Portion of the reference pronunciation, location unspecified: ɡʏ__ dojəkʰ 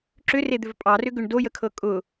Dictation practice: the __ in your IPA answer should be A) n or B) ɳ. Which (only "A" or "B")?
B